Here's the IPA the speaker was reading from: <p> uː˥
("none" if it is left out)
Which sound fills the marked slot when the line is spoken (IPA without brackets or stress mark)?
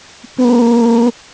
p